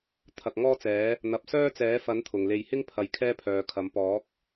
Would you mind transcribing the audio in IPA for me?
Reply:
t̪ʰ ɐ˨ k̚ ŋ ɔː˥ t͡s ɛː˨˥ | n̪ ɐ˨ p̚ s œː˥ t͡s ɛː˨˥ f ɐ˨˥ n t̪ʰ ʊ˨˩ ŋ l e˨ j h ɪ˥ ŋ pʰ ɐ˨ j kʰ ɛː˥ pʰ œː˨ kʰ ɐ˨˥ m p ɔː˨˥ k̚

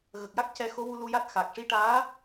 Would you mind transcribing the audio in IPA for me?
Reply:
ɣ ə˨˩ k̚ j a˦˥ k̚ c ɛ˧ x o˧˥ w u˧ l u˧ j a˦˥ t̚ x a˨˩ k̚ ʂ i˧ ʈ aː˧˥

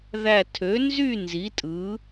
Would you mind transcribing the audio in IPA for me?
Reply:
ð æ˥˧ tʰ ø˨˥ n z y˥˧ n z i˨˥ tʼ ɯ˨˥

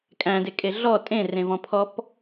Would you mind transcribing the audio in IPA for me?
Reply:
kʼ æ̃ d e kʼ e ɮ ɔ tʼ ẽ r ẽ v ɔ̃ pʰ ɔ p

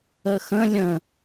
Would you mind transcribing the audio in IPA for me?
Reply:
ə x ə̃ lʲ ə̃

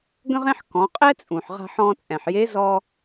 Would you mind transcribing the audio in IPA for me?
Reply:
ɡ ə̃˥ ʁ ẽ˥ ħ k ɔ̃˩˧ qʼ ɛ˥ t͡sʼ ũ˩ ħ ʁ a̤˧ ħ ɔ̃˧ t͡sʼ ɛ̃˩ ħ j e˧˥ z ɔ˧

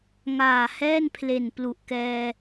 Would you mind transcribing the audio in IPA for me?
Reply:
ŋ aː˨˩ h ɛː˥˩ n pʰ l e˨˩ n p l u˨˩ ʔ k ɛː˧

